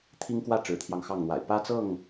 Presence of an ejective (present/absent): absent